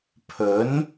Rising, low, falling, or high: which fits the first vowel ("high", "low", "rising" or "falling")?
rising